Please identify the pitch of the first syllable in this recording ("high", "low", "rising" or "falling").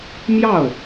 falling